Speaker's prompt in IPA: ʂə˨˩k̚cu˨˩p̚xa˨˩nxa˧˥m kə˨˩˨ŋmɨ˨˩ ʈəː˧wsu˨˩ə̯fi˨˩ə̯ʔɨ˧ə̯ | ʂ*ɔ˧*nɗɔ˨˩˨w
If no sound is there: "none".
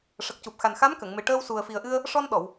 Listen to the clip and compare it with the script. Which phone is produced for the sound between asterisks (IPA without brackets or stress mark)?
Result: ɔ˧